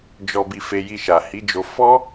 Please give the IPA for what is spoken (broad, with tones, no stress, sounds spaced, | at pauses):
d͡ʒ ɔ˨ b i˨ f e˧ j i˧ ʃ a˨ h i˨˦ d͡ʒ o˧ f ɔ˦